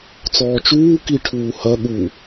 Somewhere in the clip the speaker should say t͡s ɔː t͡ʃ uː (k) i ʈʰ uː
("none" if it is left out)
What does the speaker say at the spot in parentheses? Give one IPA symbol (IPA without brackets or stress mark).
k